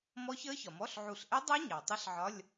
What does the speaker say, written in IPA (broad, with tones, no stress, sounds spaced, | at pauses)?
m ɔ˦˥ ç əː˦˥ ç ɒ˩ m ɔ˧˥˧ ɬ ʕ u˧˩ ɬ ʔ ɛ˦˥ dˤ ɜ˦˥ ɲ ɑ˩ tˤ ə˦˥ ɬ ʕ ɒ˧˥˧ lʲ